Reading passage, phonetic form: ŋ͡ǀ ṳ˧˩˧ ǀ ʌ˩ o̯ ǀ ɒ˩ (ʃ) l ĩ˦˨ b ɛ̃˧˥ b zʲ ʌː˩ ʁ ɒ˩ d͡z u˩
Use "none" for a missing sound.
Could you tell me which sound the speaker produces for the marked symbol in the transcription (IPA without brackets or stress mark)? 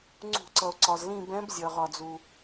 z